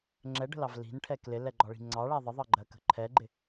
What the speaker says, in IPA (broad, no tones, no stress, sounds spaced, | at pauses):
ŋ͡ǁ ɛ ɖ ə̤ l ɑ v l i̤ n ʈʰ ɛ k l ɪ l ɛ ɡ͡ǃ ɒ ɭ i̤ ŋ͡ǀ ɑ ɭ æ ðˤ ʌ ðˤ ɑ ɡ͡ǃ ɜ k ə̤ ǃʰ ɛ ɡ͡ǃ ɪ